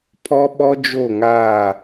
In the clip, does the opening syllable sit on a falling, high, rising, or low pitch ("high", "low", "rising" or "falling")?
high